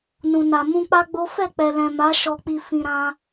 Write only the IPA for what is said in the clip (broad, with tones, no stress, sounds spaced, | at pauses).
n ũ˨ n a˨ m ũ˧ k͡p a˦ ɡ͡b o˦ f ɛ˦˨ k͡p ɛ˨ l ɛ̃˨ m a˨˦ ʃ ɔ˧ k͡p i˧ f ĩ˧ ɾ ã˦